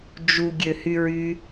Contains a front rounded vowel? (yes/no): yes